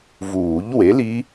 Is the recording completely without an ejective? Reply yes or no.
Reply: yes